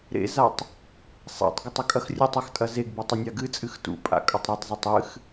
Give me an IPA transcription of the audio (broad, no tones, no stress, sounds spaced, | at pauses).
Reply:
ɾ ḛ z a tˤ | sˤ a̰ tˤ ɡ ə tˤ ə kʼ ɐ x rʲ ə tˤ ɐ x tʼ ɐ z e ɡ b ɨ tˤ ɐ nʲ a ɡ ɨ t͡sʼ ɨ x t ṵ pʼ a̰ kʼ ɐ tˤ ɾ u tˤ z o tˤ ɨ x